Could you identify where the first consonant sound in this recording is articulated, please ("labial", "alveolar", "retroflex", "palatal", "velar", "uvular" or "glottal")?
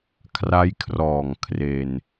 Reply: velar